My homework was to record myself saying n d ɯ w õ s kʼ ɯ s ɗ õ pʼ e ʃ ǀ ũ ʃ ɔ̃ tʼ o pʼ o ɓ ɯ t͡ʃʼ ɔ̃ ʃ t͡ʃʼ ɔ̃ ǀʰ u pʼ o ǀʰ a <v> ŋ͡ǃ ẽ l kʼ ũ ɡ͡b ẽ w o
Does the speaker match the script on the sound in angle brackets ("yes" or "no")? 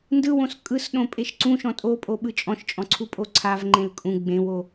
yes